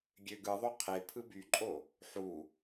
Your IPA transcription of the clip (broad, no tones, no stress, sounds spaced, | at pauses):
ɡʲ ø ɡ ɯ ðˤ o qʰ e pʰ ɯ b y ǃʼ o | ħ u